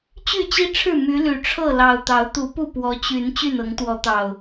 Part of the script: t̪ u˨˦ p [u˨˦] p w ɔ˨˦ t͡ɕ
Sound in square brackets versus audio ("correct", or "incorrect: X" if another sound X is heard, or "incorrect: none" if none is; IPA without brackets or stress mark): incorrect: u˥˨